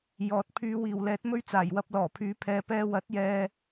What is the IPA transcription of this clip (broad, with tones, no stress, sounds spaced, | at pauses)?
j ɔː˨˥ t̚ pʰ yː˨˧ w iː˨˩ w l ɛː˨˥ t̚ m ɵ˥ ɥ t͡s aː˨˩ j w ɐ˧ p̚ l ɔː˨˩ pʰ yː˨˥ pʰ ɛː˨˧ p ɛː˧ w ɐ˨˥ t̚ j ɛː˧